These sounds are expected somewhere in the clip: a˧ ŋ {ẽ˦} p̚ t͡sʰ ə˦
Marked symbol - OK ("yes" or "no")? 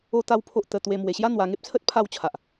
no